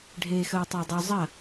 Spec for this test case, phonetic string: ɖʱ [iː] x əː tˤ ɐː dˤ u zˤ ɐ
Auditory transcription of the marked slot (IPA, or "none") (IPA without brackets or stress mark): eː